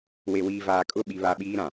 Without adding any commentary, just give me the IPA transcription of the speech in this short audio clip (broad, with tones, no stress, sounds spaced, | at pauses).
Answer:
w e˨ w iː˨ v aː˨ kʼ ʊ˦˨ ɓ i˦ β a˦ ɓ iː˦ ɾ ã˨